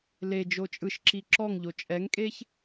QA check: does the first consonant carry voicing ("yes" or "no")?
yes